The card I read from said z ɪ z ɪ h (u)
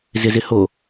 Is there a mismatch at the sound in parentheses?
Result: yes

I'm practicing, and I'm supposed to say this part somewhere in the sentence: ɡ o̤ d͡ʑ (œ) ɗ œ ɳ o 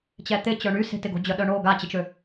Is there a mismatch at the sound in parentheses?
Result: no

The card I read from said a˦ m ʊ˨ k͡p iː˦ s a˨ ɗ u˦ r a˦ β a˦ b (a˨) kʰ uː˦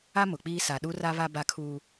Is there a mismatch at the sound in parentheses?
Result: yes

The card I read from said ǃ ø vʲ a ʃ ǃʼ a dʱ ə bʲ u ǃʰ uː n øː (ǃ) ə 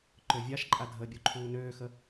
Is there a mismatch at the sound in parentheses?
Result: yes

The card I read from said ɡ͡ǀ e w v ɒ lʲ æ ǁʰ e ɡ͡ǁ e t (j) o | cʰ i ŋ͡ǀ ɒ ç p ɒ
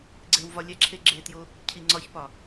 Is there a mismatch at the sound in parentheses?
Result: no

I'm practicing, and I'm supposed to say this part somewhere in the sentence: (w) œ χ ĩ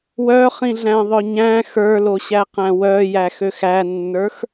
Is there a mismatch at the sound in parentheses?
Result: no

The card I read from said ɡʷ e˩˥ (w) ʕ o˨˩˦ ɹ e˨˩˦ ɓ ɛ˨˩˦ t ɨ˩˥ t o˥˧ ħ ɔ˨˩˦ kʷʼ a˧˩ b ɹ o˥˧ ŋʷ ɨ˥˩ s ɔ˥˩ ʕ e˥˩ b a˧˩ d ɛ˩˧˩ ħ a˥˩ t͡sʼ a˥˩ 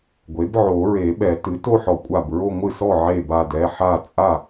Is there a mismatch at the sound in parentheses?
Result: yes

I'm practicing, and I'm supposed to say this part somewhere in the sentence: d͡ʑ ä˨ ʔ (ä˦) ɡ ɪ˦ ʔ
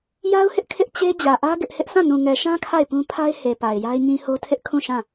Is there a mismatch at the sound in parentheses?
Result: no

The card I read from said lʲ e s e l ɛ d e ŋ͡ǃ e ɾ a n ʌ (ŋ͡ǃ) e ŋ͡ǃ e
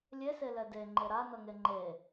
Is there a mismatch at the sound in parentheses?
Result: yes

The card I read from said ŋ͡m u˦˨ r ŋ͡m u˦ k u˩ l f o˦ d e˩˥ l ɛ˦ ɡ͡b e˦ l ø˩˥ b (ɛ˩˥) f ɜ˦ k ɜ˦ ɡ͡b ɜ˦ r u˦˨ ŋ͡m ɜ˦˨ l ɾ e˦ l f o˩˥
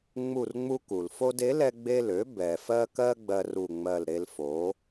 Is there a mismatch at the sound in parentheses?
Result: yes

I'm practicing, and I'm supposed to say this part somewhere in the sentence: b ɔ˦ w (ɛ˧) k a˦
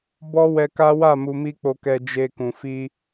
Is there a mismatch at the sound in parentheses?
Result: no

